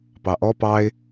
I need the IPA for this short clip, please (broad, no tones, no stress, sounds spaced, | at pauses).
p ɑ ʔ ɔ p ɑ ɪ̯